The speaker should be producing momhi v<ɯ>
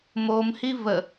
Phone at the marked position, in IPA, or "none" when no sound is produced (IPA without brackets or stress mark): ə